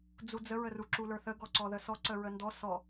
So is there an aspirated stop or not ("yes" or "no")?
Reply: no